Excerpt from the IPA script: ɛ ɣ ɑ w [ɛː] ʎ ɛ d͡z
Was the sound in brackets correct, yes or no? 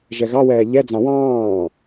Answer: yes